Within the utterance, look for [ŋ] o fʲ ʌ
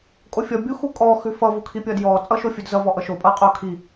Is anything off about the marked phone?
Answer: yes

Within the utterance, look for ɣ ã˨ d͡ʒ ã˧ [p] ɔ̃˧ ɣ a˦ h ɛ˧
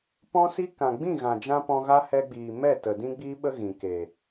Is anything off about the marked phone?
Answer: no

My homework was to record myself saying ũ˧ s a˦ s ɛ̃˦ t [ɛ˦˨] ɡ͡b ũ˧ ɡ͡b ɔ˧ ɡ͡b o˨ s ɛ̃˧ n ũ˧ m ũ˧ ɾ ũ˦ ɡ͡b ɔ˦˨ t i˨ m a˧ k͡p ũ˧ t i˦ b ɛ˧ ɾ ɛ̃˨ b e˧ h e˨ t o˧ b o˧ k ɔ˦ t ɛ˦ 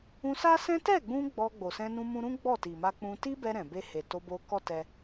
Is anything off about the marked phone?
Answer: no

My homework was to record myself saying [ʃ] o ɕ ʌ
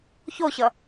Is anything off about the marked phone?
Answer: yes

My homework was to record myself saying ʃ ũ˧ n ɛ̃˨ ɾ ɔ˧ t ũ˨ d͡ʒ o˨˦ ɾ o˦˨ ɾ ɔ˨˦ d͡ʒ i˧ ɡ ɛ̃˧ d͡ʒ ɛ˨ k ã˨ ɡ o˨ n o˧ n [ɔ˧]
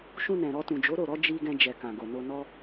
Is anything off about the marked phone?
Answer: yes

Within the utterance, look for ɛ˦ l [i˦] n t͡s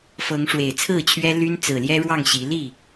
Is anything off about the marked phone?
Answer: yes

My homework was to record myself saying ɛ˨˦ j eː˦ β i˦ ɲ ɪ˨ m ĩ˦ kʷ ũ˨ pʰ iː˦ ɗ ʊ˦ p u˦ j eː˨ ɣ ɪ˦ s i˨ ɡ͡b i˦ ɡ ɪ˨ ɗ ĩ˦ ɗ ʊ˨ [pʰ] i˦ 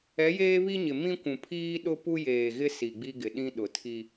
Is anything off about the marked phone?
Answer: yes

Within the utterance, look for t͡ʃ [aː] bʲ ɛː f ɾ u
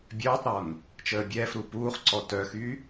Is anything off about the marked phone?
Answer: yes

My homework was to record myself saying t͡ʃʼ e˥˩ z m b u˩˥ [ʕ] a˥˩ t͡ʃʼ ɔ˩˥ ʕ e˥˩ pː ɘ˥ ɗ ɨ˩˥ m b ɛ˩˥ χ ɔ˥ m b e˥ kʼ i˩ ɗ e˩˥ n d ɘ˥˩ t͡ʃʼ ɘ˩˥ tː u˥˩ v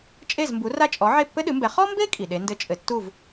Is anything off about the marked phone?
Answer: yes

